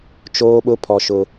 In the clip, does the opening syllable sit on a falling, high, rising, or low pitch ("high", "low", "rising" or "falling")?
high